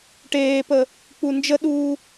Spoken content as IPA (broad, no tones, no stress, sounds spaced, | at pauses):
ʈ eː p ə | k͡p u n d͡ʒ ə ɗ uː